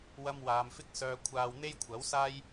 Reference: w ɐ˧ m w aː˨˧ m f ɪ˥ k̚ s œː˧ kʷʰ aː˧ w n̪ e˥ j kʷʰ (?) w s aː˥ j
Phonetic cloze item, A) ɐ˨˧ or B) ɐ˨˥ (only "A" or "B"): B